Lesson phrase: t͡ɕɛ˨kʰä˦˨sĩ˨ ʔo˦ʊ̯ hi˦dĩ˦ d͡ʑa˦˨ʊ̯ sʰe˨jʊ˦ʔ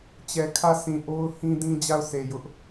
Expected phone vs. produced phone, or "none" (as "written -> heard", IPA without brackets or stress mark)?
i˦ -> ĩ˦